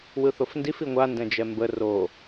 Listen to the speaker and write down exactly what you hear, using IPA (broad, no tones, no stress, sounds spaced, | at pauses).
w ɯ θ o f n d i f i ŋʷ a n d ɛ̃ d͡ʒ ɛ m b ə r o